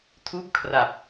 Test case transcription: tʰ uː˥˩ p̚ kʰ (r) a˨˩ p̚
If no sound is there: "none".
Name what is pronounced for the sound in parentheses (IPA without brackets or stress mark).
r